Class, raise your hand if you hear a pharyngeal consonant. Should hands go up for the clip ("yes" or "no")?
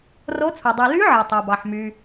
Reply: yes